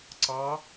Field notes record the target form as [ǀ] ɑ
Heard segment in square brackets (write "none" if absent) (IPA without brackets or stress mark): ǀ